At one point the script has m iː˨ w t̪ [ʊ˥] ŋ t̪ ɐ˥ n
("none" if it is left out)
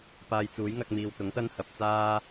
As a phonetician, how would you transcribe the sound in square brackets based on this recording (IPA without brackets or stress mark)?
ʊ˨˥